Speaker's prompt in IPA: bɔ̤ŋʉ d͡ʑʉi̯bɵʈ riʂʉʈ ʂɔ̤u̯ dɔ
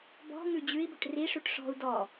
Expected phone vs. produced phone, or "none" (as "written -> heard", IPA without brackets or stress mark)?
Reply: none